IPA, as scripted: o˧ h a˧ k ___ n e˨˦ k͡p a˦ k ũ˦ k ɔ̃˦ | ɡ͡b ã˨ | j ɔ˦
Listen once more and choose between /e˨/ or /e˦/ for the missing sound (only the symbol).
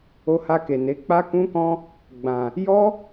e˨